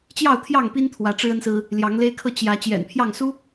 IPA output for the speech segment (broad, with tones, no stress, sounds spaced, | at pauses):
t͡ɕ j ɑ˥˨ ʊ̯ t̪ʰ j ɑ˥˨ ŋ p i˦ n t̪ʰ w ä˨˦ ʈ͡ʂ ɻ̩˦ ə˦ n s ɹ̩˦ | l j ɑ˨˦ ŋ l e˦ ɪ̯ kʰ ɤ˦ t͡ɕ j ä˨˦ t͡ɕ j ɛ̰˨˩ n pʰ j ɑ˥˨ ŋ s u˦